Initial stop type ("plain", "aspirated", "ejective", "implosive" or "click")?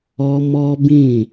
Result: plain